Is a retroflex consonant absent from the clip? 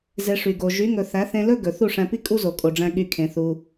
no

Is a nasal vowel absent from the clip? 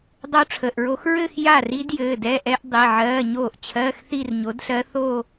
yes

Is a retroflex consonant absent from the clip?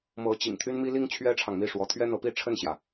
no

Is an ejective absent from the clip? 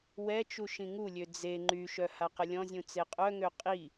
no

